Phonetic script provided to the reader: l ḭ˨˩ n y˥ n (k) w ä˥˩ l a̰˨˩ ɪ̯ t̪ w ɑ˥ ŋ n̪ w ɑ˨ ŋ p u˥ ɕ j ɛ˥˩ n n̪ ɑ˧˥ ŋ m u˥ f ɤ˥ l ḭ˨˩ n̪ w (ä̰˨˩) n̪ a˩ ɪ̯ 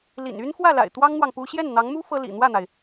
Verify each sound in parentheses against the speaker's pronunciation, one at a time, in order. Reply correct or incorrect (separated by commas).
incorrect, incorrect